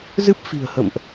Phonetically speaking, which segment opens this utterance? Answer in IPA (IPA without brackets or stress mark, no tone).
z